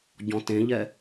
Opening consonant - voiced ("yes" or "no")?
yes